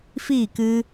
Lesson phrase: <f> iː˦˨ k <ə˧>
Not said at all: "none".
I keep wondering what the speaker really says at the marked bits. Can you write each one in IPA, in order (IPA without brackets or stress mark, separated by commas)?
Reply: f, ɨ˧